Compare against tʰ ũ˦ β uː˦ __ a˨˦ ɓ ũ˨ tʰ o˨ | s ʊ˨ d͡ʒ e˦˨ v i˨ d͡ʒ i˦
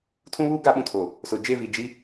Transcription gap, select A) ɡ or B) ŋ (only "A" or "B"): A